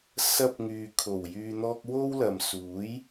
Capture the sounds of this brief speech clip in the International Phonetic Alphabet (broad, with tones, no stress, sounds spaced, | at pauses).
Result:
s ɐ˧ p̚ ŋ yː˨ kʰ o˨˩ w j yː˧ n̪ ɔː˥ k̚ w o˥ w l ɐ˨ m s uː˨˥ j